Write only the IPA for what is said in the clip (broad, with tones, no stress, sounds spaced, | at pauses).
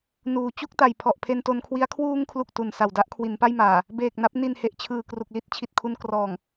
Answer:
n uː˩˦ t͡ɕ u˥˩ k̚ t a˨˩ j pʰ ɔ˨˩ ʔ pʰ e˧ n t o˧ n kʰ w i˦˥ a̯ kʰ w uː˧ ŋ kʰ l u˨˩ k̚ t u˨˩ n s a˨˩ w d a˥˩ ʔ kʰ w i˩˦ n p a˥˩ j m aː˨˩ | b eː˨˩ k̚ n a˦˥ p̚ n i˨˩ n h e˨˩ ʔ t͡ɕʰ ɯː˨˩ k r u˨˩ k̚ l i˥˩ t̚ t͡ɕʰ i˨˩ t̚ kʰ u˧ n k r ɔː˨˩ ŋ